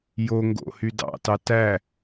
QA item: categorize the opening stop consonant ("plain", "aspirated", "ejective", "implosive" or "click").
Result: plain